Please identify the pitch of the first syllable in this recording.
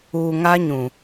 low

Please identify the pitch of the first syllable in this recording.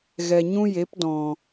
low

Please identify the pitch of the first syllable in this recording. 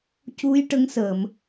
rising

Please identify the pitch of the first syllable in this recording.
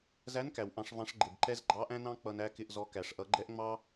rising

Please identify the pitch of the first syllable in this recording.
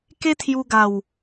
high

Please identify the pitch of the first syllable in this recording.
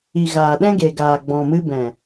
low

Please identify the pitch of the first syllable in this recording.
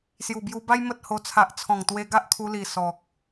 low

